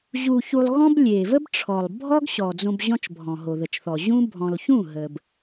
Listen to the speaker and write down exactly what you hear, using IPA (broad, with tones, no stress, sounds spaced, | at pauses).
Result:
ʑ u˧ ç u˧ lˠ ɣ ɔ̃˦ b lʲ e˨ v ə˦ b ʈ͡ʂʰ ɔ˨ lˠ bʱ ɔ˦ ɡ ɕ ɔ˨ d͡z õ˧ b ʑ ɔ̃˦ t͡ʃ bʱ ɔ̃˨ ɦ o˨ ð ə˨ t͡ʃ θ ɔ˨ ʑ ũ˦ bʱ ɔ̃˨ l ç ũ˦˨ ɦ ə˨ b